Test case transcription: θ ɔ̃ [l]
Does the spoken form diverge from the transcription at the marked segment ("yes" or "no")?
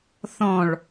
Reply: yes